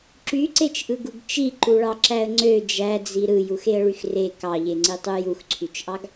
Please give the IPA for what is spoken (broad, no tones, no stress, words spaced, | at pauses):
ǁyǀet͡ʃʔɯɡuɡ t͡ʃiǃuɭɑǁæə̯ ŋ͡ǀø d͡ʒæd͡zi ɾɯjuxeə̯ɭyx re kɑʎeŋ͡ǀitˤu juxǀʰyt͡ʃʔɑɡ